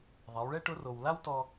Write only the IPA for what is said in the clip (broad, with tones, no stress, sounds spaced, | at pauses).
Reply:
ðˤ a˩˧ w ɭ ɛ˥ ʈ ʊ˧˥ r o˩ w l a˥ w t ɔ˧